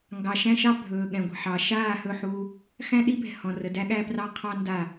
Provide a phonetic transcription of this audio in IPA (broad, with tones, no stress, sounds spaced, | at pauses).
ŋ ɡ ɑ˨ ʃ æ̃˦ ʃ ɑ˦ bʱ ɵː˨ ɠ ɛ̃˨ ɡʷ ə̤˨ ħ ɑ˨ ʃ aː˦˨ h ɵ˦˨ ħ uː˦ | x æ̃˦ ɗ i˦ b ɛ̤˨ h ɔ̃˨ r ə˨ d æ˦ ɠ æ˦ p r ɑ˦ qʰ ɑ˦ n d a˦˨